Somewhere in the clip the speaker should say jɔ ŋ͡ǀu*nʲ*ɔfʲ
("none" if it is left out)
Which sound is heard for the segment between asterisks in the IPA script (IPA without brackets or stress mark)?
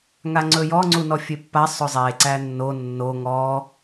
n